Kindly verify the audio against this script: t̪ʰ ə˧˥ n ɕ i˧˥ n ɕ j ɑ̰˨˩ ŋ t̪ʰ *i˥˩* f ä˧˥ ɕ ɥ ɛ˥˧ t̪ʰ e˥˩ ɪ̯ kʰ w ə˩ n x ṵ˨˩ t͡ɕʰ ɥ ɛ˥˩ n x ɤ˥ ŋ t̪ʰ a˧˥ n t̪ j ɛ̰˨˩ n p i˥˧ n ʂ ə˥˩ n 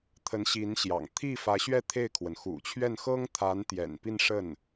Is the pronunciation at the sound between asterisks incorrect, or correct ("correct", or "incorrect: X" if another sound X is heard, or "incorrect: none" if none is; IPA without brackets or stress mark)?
correct